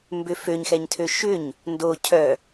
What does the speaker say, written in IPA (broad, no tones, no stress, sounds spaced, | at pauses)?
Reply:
m b ʏ f ø ɲ x ɛ ɲ tʰ ø ʃ ʏ ɲ | n d o cʰ œ